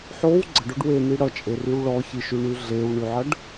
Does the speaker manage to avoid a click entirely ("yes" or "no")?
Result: no